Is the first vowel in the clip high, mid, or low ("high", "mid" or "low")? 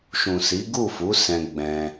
high